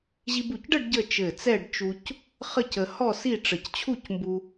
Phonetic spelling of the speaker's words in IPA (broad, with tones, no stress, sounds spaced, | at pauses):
ʑ i˧ b u˧˩ c ɖ ə˥˧ ɖ ɟ ə˥˧ t͡ʃ ɘ˧˩ t͡s ɛ˥˧ ɖ t͡ʃ u˧ c | χ ə˥˧ c ə˧ h ɔ˥˧ s i˥˧ ʈ͡ʂ ə˧˩ c t͡ɕʰ u˥˧ c m b u˧